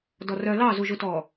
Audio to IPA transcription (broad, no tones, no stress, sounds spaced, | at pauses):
d ɔ r œ l ɑ z u ʒ u t ɔ